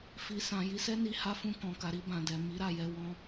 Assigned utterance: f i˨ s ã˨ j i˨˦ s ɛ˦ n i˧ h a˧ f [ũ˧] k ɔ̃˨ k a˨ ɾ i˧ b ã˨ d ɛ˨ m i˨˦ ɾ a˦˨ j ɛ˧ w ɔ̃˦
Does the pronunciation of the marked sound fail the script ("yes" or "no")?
no